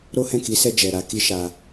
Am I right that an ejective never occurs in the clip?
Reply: yes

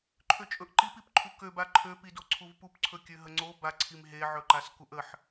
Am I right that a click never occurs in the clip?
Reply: no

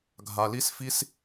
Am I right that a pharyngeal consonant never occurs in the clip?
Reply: yes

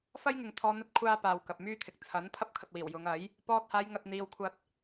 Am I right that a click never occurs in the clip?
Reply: yes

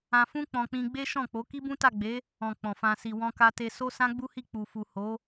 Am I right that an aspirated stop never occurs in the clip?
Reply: yes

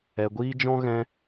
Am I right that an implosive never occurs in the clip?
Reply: yes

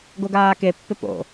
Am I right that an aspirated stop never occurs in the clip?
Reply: yes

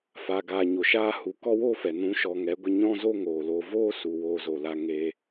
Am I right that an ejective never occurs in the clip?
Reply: yes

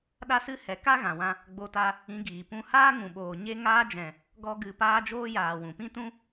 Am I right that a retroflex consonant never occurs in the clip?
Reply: yes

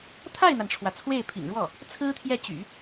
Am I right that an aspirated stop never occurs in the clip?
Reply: no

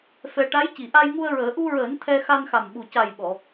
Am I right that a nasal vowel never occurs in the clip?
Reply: yes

